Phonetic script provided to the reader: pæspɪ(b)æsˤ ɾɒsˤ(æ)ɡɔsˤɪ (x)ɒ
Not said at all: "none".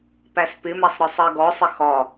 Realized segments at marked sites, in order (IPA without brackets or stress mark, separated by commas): m, ɜ, x